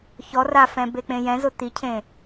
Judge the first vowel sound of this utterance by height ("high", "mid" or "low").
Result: mid